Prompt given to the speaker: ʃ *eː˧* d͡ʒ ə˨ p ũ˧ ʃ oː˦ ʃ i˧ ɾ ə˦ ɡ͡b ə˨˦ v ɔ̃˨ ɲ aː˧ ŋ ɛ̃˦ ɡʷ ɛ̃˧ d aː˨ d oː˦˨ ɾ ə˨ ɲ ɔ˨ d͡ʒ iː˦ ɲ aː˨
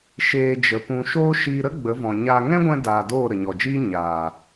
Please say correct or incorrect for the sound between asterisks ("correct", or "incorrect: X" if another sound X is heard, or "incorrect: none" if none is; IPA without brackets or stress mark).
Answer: correct